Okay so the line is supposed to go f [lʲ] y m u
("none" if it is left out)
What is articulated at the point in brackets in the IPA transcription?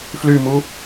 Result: l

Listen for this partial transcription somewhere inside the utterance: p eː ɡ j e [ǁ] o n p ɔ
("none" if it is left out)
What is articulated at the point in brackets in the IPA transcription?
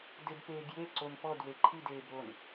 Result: ǀ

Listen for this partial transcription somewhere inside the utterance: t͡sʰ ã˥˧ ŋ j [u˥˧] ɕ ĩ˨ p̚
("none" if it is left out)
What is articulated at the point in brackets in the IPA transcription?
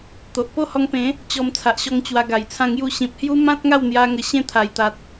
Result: u˥˧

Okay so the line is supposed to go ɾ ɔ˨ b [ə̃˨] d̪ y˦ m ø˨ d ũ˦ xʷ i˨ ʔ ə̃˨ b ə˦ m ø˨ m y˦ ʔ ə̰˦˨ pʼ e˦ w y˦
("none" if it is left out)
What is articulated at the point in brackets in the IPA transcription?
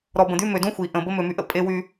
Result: ə̃˨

